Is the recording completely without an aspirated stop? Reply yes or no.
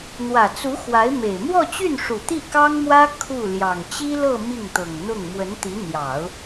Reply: no